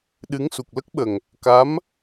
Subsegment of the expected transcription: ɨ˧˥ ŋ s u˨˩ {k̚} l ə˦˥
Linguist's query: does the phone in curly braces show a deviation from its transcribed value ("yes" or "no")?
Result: no